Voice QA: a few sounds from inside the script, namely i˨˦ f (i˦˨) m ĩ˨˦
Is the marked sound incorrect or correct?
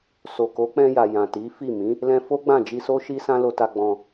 correct